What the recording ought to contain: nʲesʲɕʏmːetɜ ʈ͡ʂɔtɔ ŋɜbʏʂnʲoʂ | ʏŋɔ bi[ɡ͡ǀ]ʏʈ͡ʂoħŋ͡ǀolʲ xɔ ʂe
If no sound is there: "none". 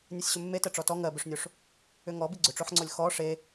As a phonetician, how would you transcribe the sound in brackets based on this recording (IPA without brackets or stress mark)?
ɡ͡ǀ